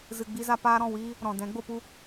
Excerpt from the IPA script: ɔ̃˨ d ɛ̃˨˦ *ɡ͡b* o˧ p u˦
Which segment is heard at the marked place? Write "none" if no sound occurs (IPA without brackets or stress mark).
ɡ͡b